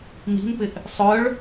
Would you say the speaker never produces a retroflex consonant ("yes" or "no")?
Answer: no